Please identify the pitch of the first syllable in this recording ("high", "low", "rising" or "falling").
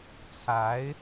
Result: rising